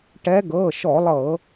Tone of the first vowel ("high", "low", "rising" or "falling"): rising